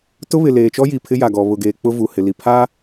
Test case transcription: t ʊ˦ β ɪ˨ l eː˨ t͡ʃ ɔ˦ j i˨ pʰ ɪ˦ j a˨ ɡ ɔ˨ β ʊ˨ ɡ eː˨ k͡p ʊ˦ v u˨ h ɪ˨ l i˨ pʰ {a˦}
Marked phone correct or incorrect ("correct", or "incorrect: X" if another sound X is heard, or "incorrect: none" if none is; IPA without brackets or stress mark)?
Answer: correct